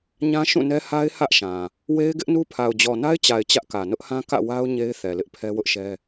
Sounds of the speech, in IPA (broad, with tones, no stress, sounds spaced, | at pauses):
ɲ ã˦ ʃ ũ˦˨ n ɛ˦ h a˦ ɪ̯ h ä˦ ʔ ʃ ã˨ | w e˦ ɪ̯ ɡ ɪ˦ ʔ n u˦ pʰ a˨ ʊ̯ d͡ʑ ɔ˨ n a˦ ɪ̯ t͡ɕ a˨ ɪ̯ t͡ɕ ä˦ ʔ k ä˨ n ʊ˦ ʔ h ã˦ k ä̰˦˨ w a˦ ʊ̯ ɲ e˦ ɪ̯ θ ɛ˨ l ɪ˦ ʔ pʰ ɛ˦ w ʊ˦ ʔ ʃ ɛ˦